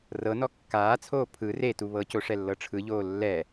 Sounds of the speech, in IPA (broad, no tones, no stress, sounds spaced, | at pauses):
r ɤ n ɔ kː aː t͡sʰ oː pʰ ɯ r e t u β ɤ c o ʂ ɛ lː ɤ ʈ͡ʂʰ ɯ ʎ oː lː ɛ